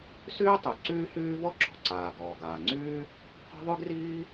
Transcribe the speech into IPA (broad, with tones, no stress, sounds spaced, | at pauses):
s yː˥ tˤ y˩ ǀ yː˥ h yː˥ v ɔ˥ ǁ ɔ̤˩ ǀ aː˩ ɡ ɔː˩ ɡ aː˩ ŋ͡ǀ yː˥ | qʷ a̤˥ ðˤ y˥ ɡ r iː˥